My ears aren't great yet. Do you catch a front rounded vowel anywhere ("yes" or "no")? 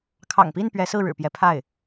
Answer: no